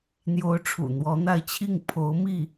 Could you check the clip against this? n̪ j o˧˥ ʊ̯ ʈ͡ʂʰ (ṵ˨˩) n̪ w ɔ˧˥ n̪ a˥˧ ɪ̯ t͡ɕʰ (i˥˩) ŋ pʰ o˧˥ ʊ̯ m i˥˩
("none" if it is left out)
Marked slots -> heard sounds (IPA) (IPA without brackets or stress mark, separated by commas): ṵ˨˩, i˥˩